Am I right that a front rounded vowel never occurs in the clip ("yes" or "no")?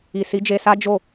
yes